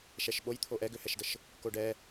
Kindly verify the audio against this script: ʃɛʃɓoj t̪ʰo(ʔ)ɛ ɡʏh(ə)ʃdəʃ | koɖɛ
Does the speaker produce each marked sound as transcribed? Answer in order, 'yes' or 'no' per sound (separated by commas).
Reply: yes, no